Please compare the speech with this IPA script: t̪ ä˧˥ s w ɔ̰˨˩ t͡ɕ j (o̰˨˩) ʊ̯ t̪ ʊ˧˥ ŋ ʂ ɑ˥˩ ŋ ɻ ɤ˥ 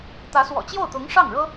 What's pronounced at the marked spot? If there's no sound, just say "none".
o˥˩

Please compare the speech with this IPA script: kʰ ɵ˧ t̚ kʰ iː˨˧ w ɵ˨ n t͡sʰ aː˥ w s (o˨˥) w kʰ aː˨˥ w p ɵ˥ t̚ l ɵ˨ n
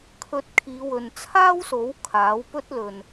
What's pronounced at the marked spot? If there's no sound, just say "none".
o˨˥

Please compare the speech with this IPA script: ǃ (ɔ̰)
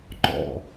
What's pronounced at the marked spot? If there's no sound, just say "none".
ɔ̰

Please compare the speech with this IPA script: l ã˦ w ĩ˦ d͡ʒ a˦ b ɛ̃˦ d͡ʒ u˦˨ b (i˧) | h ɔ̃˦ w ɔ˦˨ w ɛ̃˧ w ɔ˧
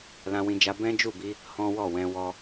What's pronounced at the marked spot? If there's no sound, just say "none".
i˧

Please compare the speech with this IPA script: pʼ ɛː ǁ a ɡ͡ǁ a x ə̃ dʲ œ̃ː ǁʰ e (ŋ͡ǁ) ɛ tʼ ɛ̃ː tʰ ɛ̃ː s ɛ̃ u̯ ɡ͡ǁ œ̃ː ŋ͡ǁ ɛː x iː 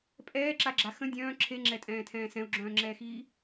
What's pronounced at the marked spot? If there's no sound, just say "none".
ŋ͡ǁ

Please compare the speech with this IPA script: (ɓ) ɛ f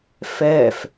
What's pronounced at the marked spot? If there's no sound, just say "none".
f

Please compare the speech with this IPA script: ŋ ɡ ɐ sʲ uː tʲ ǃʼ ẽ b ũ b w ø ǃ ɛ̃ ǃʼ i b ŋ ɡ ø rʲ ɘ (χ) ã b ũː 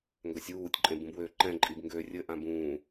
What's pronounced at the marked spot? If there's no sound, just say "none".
ʔ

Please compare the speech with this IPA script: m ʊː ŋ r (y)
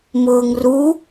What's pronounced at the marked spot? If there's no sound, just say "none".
u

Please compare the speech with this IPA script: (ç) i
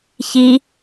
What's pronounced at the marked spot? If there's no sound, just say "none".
ç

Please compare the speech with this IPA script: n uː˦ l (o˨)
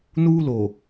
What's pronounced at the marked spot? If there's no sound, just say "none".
o˨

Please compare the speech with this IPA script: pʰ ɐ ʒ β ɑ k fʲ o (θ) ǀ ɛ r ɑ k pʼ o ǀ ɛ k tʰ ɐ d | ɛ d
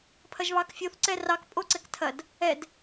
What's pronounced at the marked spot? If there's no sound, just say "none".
θ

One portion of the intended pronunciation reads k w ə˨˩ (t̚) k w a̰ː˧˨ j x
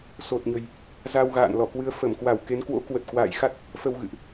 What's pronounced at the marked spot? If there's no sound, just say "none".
t̚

